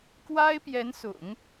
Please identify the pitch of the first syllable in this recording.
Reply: high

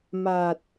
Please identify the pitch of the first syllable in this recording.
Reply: low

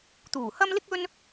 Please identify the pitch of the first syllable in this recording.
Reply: low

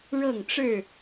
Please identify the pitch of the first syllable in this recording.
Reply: falling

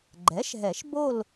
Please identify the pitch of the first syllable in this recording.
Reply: rising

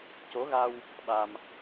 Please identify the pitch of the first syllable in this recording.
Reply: rising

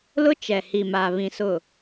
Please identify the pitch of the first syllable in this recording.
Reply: high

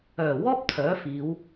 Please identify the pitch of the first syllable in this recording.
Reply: low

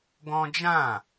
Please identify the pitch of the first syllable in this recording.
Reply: high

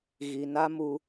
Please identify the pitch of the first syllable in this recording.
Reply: low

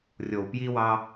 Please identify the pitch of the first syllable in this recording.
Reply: low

